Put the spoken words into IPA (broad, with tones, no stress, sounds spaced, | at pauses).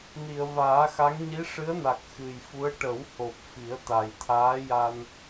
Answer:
n i˨˩˨ ə̯ v aː˨˩˦ x a˧˥ ŋ ɲ i˧˥ ʂ ɨ˧˥ ə̯ n a˨˩ k̚ x ɨ˨˩ j f u˧˥ ə̯ ʈ ə˨˩˦ w h o˨˩ p̚ f i˨˩˦ ə̯ t̪ a˨˩ j t̪ʰ aː˧˥ j a˧ n